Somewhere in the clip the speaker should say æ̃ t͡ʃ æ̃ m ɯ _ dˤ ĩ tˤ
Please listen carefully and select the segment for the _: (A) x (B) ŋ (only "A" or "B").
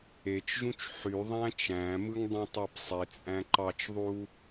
B